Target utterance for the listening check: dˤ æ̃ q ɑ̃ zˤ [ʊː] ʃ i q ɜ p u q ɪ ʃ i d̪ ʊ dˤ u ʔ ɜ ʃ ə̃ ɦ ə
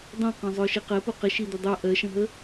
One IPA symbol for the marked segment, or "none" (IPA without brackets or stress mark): ʊː